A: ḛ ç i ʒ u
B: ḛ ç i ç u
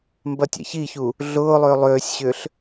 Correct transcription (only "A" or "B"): B